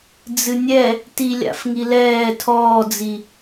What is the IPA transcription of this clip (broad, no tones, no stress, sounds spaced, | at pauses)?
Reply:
d͡z ɨ nʲ ɛ | t i lʲ a̰ f ŋ i l ɛː tʰ ɔː d͡z i